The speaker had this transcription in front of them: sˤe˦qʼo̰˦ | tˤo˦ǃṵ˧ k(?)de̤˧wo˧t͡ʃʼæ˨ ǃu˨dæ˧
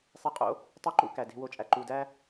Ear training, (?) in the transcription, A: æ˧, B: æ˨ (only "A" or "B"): B